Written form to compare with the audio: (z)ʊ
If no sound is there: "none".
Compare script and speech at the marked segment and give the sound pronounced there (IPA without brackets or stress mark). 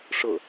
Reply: ʂ